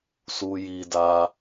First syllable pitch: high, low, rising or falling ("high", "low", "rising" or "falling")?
low